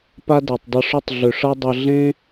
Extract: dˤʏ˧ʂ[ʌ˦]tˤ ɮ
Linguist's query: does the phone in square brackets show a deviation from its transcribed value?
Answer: no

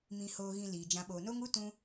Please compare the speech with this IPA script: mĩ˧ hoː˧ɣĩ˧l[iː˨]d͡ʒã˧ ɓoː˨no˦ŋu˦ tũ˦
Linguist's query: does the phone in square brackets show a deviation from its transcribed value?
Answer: no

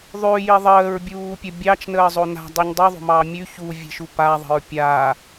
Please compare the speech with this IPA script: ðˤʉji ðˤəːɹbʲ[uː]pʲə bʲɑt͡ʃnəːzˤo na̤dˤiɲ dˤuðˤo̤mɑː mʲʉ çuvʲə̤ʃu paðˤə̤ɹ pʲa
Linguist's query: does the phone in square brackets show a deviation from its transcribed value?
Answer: no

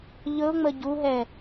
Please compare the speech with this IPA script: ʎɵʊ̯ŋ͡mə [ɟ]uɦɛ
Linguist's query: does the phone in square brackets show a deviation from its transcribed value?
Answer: no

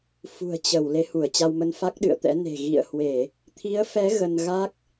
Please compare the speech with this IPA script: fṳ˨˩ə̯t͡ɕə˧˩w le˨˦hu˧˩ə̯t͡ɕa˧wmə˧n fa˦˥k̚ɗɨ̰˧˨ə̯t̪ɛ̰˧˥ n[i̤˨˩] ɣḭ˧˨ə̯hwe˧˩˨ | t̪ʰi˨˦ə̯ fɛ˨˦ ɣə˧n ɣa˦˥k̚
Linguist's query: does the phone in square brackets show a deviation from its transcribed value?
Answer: yes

